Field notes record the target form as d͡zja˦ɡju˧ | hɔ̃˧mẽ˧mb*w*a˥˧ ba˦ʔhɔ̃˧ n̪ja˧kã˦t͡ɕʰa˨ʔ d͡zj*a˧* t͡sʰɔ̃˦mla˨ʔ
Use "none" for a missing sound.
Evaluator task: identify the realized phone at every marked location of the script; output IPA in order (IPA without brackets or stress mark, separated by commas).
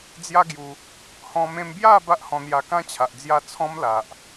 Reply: j, a˥˧